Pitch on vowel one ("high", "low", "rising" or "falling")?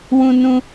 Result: high